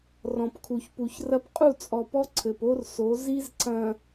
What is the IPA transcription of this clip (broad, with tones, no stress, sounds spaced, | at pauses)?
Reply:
r ɔ̃˨ p kʰ u˨ ç p u˨ ç r ɐ˦ p qʼ u˦˨ t͡sʼ ɔ˨ p ɔ˦ ǀʰ ɘ˨ p o˦ r s o˨˦ z i˦ z ǀ ɐ̃˨